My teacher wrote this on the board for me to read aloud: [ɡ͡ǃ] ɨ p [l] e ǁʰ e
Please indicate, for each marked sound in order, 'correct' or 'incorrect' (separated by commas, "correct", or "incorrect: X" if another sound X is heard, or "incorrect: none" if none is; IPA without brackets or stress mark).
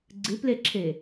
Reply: incorrect: ɡ͡ǀ, correct